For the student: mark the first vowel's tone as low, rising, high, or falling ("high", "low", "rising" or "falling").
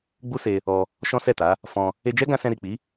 high